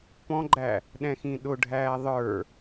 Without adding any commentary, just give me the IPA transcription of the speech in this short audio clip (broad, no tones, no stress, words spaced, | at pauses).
pɔ̃ɡ͡ǃæ | ɗɛ̃xĩɗʊɖʱæː ðˤə˞